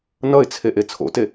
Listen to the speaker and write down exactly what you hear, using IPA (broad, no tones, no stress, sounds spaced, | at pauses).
n ʌ ɪ̯ t͡sʰ e ʔ e t͡sʰ o̰ t e